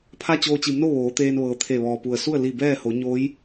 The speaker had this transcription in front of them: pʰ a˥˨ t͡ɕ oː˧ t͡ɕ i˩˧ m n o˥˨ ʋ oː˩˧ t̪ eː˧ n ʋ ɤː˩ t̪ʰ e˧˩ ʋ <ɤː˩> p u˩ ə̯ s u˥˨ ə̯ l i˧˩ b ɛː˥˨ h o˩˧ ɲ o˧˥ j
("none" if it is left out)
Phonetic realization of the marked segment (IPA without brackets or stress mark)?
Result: ɔː˩